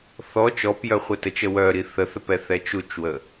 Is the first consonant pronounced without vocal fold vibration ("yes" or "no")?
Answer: yes